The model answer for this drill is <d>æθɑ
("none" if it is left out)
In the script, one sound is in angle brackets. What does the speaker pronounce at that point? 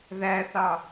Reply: ð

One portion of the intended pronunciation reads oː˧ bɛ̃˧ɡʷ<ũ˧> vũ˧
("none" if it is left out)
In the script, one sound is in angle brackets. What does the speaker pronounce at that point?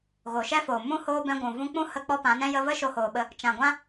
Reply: ũ˨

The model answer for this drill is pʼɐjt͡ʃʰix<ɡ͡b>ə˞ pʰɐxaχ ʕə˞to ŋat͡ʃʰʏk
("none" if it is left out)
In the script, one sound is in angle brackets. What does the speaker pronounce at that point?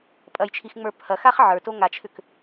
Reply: ŋ͡m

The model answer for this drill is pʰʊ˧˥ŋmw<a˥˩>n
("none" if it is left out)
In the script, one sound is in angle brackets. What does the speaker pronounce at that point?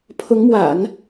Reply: a̰˨˩˦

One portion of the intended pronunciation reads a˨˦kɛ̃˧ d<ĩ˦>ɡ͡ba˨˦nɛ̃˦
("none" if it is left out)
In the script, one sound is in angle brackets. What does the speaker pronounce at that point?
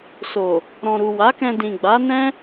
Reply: ĩ˨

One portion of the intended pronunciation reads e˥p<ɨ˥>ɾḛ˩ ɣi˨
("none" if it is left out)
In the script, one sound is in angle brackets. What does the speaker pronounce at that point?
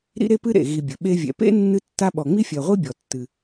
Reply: ɨ˥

